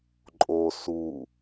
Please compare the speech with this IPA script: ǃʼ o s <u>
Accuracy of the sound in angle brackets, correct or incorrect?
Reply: correct